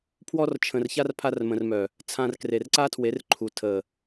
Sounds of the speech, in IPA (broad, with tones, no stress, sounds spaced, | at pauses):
pʰ w ɔ˧ r t͡ʃʰ ə̃˨ r ç a˧ r pʰ a˧ r m ə̃˨ r m œ˨ | t͡sʰ ã˧ r k r e˨ r ǀ a˦ tʰ w e˨˦ r ǃʰ u˨ tʰ ə˨